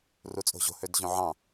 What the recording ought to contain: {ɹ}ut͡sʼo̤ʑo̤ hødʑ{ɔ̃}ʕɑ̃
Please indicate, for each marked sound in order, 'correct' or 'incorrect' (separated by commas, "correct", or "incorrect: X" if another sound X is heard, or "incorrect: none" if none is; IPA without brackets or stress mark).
incorrect: r, incorrect: õ